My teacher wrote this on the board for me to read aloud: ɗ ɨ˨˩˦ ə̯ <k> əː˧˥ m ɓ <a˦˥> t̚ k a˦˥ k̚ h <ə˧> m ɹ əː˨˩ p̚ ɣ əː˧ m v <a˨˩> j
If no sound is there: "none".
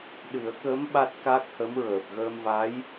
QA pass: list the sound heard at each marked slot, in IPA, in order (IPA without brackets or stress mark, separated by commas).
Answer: k, a˦˥, ə˧˥, a˧˥